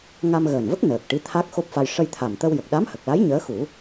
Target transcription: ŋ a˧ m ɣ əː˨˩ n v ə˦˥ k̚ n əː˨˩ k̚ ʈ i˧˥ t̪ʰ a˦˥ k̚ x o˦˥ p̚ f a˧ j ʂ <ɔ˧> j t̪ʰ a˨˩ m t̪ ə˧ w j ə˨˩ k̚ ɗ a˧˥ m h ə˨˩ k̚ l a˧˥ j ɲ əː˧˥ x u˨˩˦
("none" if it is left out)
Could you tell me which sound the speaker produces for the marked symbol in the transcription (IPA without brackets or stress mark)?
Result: ə˧